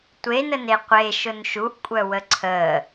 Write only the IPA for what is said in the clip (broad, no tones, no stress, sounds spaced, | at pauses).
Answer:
tʷ e n ə n e qʷ e ʃ ʊ n ʃ u ʔ kʷʼ œ w ə ǀʰ əː